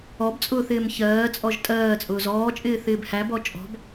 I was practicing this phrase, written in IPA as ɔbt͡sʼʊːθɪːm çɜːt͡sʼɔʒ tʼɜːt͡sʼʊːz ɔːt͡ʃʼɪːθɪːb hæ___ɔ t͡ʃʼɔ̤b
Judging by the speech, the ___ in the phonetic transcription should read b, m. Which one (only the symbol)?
b